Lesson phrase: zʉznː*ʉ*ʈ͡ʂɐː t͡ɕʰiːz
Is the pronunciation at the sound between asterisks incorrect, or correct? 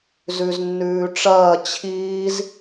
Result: incorrect